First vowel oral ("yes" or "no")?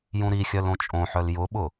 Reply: no